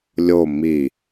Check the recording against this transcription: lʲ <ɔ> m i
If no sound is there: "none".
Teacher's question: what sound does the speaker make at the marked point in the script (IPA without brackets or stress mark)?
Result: o